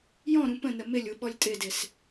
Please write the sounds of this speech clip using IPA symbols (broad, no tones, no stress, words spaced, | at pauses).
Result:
jɔ̃ɾũ pə̃nə mɪlʲu ɓɔlʲtʼɪdɪs